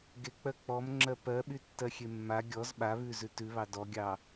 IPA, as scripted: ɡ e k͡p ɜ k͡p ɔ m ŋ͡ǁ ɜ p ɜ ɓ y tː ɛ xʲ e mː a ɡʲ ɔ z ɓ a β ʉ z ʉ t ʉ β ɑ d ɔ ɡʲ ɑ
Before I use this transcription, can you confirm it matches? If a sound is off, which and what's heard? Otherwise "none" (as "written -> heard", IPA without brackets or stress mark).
ɛ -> ɜ